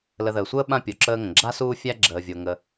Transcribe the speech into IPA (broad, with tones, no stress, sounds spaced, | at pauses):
l ə˨ ð əː˩ sʷ əː˥ ɓ ã˥ pʲ o˩ ǁ əː˦ ŋ ə̃˩ ɡ͡ǁ a˥ s uː˦ fʲ æ˥ ɡ͡ǁ əː˨ vʲ o˨ ŋ ə˨